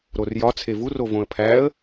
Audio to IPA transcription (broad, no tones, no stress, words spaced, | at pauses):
ɾorjɒ t͡sʰevur ovõə̯pʰæə̯